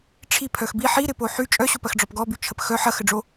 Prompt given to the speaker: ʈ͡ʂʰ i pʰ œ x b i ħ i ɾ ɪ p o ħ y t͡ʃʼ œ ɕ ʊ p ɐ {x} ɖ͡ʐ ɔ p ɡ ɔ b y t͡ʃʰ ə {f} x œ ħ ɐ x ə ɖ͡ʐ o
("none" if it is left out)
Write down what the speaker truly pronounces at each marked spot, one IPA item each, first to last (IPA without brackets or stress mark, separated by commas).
x, p